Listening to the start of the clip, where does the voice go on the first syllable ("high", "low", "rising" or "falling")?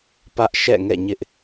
high